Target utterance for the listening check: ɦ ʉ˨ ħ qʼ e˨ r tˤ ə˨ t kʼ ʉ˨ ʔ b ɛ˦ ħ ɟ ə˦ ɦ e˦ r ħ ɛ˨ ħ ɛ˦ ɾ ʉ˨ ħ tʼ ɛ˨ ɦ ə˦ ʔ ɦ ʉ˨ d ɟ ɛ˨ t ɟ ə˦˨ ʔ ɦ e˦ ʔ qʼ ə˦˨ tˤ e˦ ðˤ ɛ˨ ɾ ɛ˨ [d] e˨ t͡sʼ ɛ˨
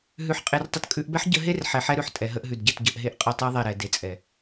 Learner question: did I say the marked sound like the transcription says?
yes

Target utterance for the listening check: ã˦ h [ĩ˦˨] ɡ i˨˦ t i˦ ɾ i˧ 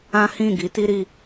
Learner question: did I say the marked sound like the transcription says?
yes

